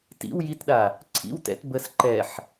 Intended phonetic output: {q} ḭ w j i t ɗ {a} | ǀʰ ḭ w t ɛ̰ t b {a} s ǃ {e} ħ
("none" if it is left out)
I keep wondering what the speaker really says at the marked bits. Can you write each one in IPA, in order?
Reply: t, a, ə, ɛ

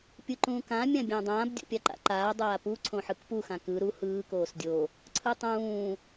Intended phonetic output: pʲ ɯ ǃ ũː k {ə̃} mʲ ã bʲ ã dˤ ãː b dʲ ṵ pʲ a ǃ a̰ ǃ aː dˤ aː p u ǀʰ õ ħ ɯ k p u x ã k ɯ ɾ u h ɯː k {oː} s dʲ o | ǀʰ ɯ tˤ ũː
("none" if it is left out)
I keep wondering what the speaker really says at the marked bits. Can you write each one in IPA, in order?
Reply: ã, oː

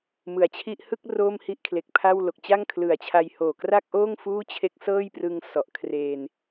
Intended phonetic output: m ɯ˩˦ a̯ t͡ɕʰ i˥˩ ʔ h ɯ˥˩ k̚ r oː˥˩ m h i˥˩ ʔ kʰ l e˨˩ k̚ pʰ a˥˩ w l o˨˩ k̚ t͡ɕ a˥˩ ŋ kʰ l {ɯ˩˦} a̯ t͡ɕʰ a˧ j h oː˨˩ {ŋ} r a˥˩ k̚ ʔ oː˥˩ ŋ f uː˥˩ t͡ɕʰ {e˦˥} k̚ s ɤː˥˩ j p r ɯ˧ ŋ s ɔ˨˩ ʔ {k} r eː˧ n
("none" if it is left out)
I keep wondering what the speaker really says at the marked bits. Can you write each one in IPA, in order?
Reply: ɯ˨˩, k, e˦˥, kʰ

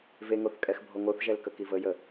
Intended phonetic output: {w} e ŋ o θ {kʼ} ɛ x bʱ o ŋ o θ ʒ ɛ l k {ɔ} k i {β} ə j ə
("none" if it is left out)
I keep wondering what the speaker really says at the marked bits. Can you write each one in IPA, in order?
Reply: v, kʼ, ə, v

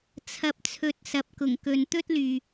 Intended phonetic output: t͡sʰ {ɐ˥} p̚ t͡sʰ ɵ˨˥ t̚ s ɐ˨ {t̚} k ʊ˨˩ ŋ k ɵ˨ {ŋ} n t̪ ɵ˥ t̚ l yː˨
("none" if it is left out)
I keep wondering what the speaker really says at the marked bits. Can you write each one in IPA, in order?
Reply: ɐ˨, p̚, none

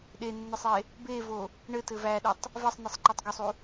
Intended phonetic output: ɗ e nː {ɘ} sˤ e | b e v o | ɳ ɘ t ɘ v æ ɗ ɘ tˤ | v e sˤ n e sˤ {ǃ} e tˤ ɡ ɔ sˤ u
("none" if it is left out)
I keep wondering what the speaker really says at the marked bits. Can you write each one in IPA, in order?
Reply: ɘ, ǃ

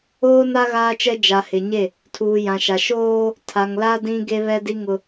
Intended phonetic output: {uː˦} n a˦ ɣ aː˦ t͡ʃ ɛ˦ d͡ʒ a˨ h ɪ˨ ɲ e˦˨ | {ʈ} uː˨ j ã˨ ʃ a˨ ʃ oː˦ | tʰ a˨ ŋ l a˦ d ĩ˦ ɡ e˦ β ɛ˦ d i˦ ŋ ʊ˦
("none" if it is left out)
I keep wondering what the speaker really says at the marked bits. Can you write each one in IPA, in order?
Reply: oː˦, tʰ

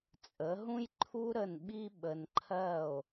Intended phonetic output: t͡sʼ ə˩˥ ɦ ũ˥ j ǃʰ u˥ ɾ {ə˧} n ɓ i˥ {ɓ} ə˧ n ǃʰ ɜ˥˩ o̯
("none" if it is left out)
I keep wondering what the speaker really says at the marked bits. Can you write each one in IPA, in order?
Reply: ə˥˩, ɓ

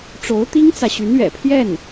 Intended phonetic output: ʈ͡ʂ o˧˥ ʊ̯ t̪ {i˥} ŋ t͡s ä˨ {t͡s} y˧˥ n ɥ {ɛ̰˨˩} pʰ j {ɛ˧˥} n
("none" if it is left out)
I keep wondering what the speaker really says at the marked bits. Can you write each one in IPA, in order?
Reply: i˥, ɕ, ɛ̰˨˩, ɛ˥˩

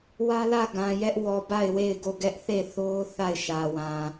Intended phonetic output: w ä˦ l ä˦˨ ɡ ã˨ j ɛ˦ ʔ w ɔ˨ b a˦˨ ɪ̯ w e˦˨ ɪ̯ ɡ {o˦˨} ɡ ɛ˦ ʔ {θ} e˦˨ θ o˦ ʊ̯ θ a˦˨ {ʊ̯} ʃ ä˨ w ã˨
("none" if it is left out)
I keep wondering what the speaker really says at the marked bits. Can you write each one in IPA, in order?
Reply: o˦˨, θ, ɪ̯

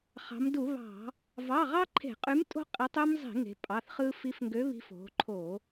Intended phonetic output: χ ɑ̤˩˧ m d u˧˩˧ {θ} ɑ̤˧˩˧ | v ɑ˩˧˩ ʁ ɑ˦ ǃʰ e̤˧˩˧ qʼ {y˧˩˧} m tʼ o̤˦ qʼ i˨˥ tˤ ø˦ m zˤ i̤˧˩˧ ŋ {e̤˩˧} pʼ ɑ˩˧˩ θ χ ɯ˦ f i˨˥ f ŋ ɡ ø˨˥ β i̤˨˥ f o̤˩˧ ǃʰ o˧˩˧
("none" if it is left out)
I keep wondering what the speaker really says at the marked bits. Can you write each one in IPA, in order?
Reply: β, y˨˥, e̤˩˧

